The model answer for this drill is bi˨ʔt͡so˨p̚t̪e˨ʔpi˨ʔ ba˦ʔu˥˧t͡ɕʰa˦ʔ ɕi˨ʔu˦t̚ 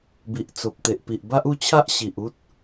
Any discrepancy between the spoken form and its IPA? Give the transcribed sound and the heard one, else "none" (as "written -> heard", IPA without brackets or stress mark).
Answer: none